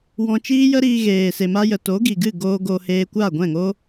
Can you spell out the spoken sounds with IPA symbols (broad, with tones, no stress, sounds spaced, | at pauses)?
w ɔ̃˧ t͡ʃ iː˦ j ə˦ ɾ iː˧ ɣ eː˨ s e˨ m a˧ j ə˨ t o˨˦ ɡ i˨ ɡ ɨ˦˨ ɡ oː˧ ɡ o˧ h eː˧ kʷ a˦˨ ɡʷ ɛ̃˦˨ ŋ o˦